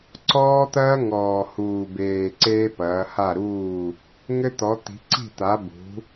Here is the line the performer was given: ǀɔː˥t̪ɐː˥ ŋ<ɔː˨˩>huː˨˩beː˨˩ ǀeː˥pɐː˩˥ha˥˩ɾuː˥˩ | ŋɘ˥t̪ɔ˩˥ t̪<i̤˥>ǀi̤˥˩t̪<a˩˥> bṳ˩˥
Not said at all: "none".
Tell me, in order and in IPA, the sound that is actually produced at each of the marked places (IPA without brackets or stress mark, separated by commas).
ɔː˨˩, i̤˩˥, a˩˥